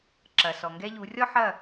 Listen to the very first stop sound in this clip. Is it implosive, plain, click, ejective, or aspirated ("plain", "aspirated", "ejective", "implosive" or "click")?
click